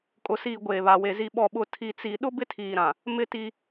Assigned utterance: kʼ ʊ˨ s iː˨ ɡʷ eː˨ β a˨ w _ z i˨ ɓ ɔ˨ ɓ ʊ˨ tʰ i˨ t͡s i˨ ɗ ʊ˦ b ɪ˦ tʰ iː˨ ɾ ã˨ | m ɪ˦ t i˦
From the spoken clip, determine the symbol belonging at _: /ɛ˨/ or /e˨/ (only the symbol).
e˨